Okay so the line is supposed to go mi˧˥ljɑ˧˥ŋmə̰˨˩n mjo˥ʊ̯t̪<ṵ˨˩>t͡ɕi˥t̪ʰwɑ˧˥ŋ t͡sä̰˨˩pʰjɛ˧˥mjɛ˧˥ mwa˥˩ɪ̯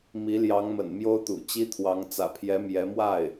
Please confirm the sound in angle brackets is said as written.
yes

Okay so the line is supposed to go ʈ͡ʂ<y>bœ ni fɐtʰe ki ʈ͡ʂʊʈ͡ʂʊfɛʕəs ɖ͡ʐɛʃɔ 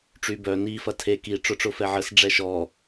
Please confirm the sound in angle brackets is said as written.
yes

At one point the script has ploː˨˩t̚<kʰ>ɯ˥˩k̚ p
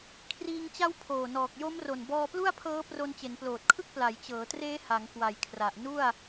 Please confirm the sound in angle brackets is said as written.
yes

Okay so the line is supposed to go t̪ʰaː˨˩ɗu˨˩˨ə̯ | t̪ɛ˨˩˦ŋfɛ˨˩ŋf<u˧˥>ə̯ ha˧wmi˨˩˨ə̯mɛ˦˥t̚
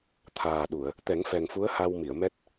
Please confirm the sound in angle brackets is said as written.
yes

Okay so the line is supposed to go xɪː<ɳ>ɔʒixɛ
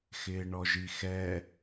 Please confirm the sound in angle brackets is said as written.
yes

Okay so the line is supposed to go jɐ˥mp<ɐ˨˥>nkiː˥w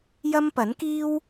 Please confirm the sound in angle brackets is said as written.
yes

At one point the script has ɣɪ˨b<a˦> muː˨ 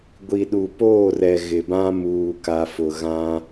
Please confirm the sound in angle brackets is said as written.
no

